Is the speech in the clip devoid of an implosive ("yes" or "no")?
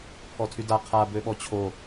no